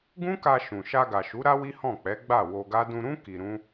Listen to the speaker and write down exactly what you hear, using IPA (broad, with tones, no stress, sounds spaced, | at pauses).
ɡ ũ˦ k a˧ ʃ ũ˨ ʃ a˧ ɡ a˨ ʃ u˨˦ ɾ a˦ w i˦ h ɔ̃˦˨ k͡p ɛ˨˦ ɡ͡b a˦˨ w o˧ ɡ a˦ d ũ˧ ɾ ũ˦ k i˧ ɾ ũ˦